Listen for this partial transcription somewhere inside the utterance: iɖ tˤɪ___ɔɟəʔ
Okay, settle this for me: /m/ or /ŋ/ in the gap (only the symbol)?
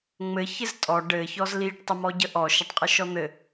m